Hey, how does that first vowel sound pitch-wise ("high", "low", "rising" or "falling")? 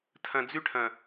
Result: low